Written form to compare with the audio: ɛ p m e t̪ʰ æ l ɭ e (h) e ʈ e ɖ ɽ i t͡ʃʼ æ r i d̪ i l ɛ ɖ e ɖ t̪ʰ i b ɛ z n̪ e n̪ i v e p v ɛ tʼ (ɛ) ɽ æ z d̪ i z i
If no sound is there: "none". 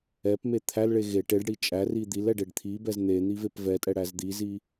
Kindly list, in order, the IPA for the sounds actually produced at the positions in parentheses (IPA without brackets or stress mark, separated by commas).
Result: ɣ, ɛ